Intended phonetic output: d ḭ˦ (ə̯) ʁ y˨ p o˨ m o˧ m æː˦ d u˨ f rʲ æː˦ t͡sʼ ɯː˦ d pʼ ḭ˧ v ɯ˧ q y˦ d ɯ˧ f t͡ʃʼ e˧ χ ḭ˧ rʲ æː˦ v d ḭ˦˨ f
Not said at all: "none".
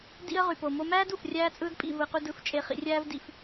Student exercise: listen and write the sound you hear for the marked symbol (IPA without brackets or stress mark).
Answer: ə̯